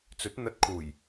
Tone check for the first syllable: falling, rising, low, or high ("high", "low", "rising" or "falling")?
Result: rising